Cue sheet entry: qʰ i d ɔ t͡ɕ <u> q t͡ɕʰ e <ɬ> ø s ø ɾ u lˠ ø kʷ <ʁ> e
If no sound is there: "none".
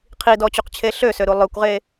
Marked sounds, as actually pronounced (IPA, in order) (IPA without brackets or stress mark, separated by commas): u, ɬ, ʁ